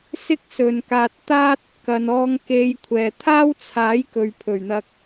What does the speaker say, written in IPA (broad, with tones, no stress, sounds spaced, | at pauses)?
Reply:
s ɪ˥ k̚ s ɵ˨ n k aː˧ t̚ t̪ aː˥ t̚ | k ɐ˨ n ɔː˧ ŋ k e˧ j kʷʰ ɛː˨ t̪ʰ aː˥ w t͡sʰ aː˨˥ j k ɵ˨ ɥ pʰ ɵ˨˩ ɥ n̪ ɐ˧ k̚